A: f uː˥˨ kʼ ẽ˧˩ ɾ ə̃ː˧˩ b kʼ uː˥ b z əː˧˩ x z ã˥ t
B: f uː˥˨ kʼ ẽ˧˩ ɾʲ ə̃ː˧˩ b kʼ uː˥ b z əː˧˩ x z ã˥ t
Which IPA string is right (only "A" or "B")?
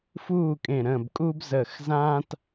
A